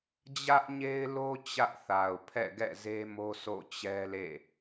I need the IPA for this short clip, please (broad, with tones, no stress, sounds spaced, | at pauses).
d͡ʑ ä˦ ʔ ɲ e˦ ɪ̯ l o˦ t͡ɕ ä˦ ʔ θ a˨ ʊ̯ pʰ ɛ̰˦˨ ɡ ɛ̰˦˨ z e˦ m o˦ s o̰˦˨ t͡ɕ ɛ˦ l ḛ˦˨